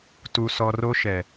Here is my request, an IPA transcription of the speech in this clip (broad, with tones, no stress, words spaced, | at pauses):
tu˦sɔ˦ ro˦ʃɛ˨